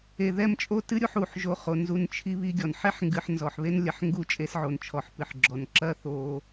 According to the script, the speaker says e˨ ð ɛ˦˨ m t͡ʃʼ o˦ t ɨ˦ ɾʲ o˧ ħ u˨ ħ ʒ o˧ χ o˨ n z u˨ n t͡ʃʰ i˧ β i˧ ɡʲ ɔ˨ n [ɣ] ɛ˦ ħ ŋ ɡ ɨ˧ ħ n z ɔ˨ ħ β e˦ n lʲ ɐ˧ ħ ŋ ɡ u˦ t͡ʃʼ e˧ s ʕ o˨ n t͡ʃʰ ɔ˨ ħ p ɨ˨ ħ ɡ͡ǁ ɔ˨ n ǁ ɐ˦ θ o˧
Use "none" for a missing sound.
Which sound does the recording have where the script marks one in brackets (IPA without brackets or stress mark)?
ħ